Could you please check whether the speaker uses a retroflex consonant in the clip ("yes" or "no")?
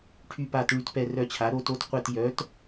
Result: yes